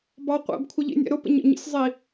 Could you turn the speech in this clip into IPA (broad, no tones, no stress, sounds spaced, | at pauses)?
b ɑ qʷ æ̰ b kʷʰ ə ʎ ḭ nʲ ɛ̰ ɾ ʊ p ə̰ ɲ ə̰ ɲ ḭ sʲ zˤ i